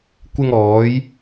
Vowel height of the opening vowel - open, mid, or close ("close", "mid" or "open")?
close